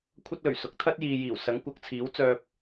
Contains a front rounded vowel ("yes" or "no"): yes